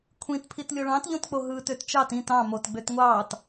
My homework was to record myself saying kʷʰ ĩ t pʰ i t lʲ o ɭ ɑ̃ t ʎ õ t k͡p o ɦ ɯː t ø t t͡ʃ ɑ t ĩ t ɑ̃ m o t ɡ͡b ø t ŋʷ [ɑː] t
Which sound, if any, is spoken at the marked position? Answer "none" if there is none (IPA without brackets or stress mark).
ɑː